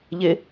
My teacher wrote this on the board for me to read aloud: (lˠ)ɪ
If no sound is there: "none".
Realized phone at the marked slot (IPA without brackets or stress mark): ʎ